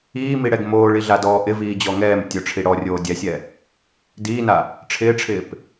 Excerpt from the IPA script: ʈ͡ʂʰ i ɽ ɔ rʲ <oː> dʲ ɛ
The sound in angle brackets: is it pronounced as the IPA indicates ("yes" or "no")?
yes